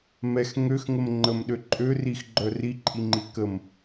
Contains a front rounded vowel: yes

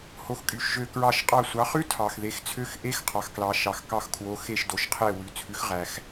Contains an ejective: yes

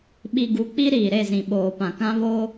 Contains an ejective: no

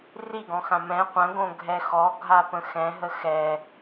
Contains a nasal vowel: yes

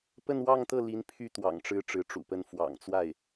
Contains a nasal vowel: no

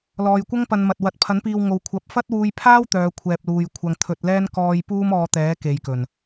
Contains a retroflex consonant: no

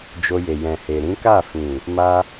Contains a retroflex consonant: no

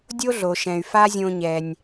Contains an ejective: no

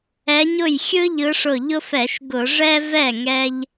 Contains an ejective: no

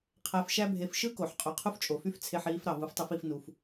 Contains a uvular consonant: yes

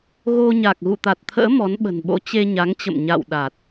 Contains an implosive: yes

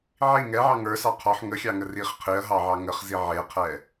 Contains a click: no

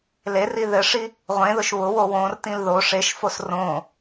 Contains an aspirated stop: no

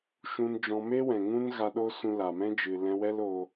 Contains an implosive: yes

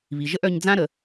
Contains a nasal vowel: yes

